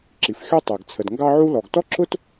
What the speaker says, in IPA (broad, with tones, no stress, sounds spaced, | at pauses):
ǁ i˩ f xʲ ɔ˥ tˤ æ˩ ɡ t͡sʰ ə˩ d ŋ ɡ ɑ˥ ʕ u˥ l ɔ˩ ɡ t ɔ˥ ǁ ʊ˥ t